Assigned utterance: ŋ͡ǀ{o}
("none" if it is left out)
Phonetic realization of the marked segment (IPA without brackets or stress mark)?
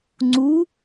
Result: u